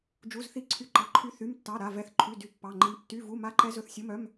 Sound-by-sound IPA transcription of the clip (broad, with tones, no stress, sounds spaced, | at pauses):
d͡ʒ u˧˥˧ z θ i˦˥ ǀʰ y˦˥ ǃ ɑ˧˥˧ ǃʰ y˦˥ θ y˧˥˧ m tː ɑ˧˥˧ ɾ a˧˥˧ v ɛ˦˥ θ ǃʰ y˧˥˧ d y˦˥ pː ɑ˧˥˧ ŋ͡ǃ i˦˥ m tː y˧˥˧ v u˧˥˧ m a˦˥ ǃ ɛ˦˥ z ɵ˧˥˧ θ sʲ o˧˥˧ m œ˧˥˧ m